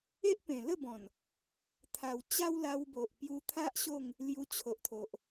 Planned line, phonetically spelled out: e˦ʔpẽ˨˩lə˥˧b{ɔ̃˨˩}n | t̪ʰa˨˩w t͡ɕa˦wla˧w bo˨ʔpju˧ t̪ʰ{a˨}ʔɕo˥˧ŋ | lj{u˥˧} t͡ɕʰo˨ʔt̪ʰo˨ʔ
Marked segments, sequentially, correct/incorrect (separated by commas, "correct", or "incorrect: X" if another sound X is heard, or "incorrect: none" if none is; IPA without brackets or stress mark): correct, incorrect: a˦, incorrect: u˧